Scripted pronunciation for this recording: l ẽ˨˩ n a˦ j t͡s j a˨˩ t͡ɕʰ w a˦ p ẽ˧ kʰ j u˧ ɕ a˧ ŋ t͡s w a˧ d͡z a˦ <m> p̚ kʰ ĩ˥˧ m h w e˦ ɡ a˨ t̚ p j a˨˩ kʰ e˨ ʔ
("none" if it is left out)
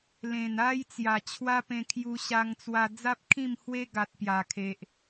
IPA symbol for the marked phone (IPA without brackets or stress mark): none